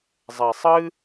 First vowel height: mid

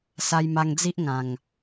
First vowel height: low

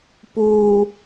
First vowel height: high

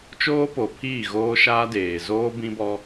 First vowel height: mid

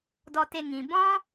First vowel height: mid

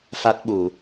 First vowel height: low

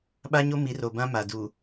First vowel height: low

